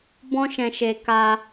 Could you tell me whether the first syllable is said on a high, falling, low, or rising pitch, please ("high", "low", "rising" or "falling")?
high